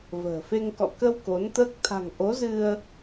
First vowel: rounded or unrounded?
unrounded